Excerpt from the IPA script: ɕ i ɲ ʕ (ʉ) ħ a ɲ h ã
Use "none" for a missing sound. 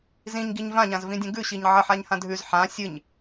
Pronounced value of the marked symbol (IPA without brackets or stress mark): ə